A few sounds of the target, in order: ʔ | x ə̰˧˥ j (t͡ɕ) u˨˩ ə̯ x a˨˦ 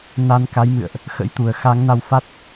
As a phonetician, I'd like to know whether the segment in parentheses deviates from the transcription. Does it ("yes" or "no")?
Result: yes